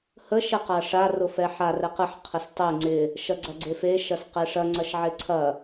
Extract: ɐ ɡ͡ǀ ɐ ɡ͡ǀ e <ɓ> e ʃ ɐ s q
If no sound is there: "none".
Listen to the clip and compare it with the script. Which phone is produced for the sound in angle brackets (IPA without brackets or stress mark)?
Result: f